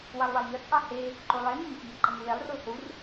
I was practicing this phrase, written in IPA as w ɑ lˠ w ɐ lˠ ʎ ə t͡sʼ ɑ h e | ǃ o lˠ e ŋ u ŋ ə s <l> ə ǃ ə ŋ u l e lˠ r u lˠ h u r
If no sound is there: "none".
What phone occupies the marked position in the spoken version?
ʎ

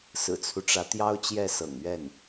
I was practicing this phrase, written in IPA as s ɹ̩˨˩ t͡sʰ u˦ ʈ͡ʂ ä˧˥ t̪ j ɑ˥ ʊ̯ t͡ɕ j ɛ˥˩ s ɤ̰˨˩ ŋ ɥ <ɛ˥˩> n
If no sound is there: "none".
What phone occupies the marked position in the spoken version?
ɛ˥˩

